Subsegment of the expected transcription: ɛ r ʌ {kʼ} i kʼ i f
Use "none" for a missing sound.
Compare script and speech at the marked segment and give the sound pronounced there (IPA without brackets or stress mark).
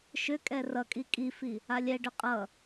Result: kʼ